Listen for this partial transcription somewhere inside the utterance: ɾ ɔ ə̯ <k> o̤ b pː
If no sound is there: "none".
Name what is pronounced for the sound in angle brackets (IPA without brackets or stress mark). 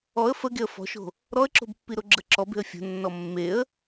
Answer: ǁ